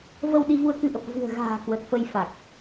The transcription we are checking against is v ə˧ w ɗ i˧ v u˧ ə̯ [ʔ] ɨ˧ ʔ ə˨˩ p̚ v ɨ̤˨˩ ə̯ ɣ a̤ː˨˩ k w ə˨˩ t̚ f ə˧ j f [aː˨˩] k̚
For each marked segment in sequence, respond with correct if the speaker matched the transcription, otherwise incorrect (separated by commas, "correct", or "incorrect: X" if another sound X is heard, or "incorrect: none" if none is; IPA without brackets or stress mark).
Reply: incorrect: k, incorrect: a˨˩